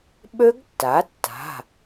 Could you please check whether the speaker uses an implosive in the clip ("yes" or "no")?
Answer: yes